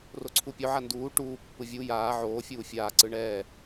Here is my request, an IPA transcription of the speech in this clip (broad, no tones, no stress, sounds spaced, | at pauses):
r o ǀʰ u pʲ o ʕ a n d uː ʈ uː pː ɯ vʲ u j aː ʕ oː fʲ uː fʲ aː ǀ ɯ ɳ ɛː